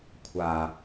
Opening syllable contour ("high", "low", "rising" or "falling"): low